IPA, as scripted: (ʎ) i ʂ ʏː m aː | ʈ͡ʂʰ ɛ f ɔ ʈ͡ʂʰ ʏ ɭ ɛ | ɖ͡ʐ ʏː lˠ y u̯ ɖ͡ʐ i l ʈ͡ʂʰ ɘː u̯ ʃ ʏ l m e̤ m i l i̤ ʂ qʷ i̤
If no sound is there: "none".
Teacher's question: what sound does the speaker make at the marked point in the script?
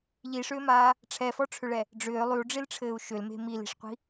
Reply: ʎ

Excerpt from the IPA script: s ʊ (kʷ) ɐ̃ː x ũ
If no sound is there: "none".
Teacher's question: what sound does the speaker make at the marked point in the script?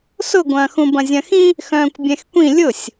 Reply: ɡʷ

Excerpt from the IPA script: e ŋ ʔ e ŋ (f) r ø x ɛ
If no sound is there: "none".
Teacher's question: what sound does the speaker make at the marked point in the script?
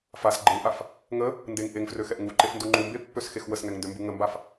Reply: f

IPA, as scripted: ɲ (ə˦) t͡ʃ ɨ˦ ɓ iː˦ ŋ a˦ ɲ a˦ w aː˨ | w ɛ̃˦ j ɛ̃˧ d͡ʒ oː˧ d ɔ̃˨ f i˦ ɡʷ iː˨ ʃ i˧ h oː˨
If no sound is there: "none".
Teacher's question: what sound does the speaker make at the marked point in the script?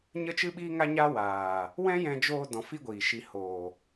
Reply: ə˦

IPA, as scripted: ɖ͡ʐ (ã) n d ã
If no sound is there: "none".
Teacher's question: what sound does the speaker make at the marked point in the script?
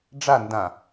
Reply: a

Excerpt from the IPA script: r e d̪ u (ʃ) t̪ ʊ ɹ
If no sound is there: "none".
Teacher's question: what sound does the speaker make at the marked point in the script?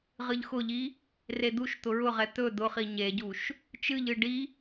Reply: ʃ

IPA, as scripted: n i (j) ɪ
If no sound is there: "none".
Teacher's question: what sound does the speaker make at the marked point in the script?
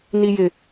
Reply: j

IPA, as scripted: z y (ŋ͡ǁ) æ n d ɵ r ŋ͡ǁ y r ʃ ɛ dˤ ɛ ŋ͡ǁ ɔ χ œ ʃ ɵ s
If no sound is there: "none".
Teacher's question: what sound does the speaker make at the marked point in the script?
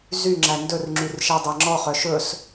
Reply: ŋ͡ǁ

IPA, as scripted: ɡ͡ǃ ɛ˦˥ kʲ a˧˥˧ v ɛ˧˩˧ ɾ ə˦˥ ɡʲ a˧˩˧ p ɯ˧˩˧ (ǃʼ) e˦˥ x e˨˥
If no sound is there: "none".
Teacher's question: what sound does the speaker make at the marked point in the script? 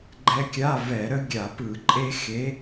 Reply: ǃʼ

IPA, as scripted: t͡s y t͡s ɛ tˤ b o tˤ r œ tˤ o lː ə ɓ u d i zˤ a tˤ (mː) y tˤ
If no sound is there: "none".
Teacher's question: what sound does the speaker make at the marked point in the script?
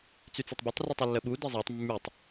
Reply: mː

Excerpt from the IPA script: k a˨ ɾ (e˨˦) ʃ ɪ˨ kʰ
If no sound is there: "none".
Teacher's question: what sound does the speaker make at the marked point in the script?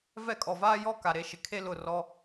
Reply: e˨˦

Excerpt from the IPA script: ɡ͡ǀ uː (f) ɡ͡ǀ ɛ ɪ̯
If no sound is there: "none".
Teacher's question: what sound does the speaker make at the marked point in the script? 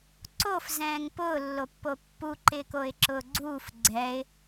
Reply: f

